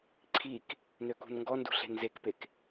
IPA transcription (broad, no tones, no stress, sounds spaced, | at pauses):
ǀʰ i k | n ø k ṳ n ŋ ɡ ɔ n d ṳ ɬ e̤ n z e k p e k